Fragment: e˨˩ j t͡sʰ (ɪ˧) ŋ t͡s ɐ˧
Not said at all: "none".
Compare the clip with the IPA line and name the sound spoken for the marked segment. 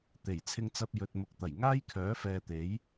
ɪ˧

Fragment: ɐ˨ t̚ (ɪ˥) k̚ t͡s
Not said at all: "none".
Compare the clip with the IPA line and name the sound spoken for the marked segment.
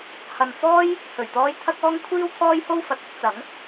ɪ˥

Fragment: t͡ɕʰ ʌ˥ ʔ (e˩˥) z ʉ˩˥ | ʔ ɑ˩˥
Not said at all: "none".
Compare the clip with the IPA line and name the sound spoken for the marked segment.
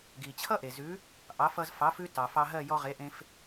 e˩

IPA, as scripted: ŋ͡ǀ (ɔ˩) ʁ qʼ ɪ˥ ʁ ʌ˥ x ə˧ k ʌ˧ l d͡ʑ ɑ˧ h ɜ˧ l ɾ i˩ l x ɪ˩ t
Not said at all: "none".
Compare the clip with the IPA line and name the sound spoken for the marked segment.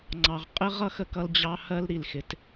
ɑ˩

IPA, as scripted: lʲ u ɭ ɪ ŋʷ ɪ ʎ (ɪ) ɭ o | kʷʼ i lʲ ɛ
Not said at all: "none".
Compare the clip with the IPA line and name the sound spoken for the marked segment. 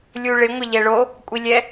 ɛ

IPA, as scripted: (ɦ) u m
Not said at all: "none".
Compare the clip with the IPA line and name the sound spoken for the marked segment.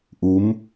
ʔ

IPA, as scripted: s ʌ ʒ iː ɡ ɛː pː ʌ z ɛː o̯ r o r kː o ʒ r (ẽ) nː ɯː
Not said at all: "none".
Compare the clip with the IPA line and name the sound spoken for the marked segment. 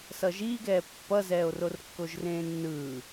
ẽː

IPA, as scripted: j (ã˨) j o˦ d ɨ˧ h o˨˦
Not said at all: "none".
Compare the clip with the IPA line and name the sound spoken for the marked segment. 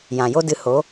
ã˨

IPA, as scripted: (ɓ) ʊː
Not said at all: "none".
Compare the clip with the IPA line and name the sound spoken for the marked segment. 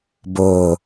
b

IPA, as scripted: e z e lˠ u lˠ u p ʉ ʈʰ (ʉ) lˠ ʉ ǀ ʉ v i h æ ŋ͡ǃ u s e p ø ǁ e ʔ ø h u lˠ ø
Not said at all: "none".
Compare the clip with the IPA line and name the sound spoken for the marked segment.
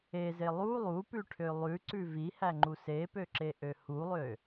ø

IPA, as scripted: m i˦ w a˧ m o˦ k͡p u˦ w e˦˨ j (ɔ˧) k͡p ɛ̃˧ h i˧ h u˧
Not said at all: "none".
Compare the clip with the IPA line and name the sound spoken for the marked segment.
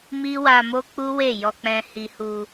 ɔ˧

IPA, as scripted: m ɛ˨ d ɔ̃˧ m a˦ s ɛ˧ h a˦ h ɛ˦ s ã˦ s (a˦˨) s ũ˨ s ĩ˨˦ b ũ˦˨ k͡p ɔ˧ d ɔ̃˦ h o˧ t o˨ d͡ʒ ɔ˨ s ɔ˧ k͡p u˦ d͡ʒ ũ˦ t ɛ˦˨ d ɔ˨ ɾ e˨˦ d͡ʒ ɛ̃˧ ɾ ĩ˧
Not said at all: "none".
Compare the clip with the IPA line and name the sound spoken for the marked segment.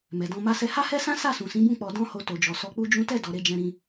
a˦˨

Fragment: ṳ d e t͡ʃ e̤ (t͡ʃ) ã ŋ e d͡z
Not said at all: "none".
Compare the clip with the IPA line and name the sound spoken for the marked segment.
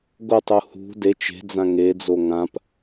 d͡z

